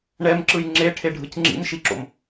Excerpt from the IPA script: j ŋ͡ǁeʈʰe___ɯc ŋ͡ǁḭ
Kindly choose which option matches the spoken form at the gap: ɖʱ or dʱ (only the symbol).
ɖʱ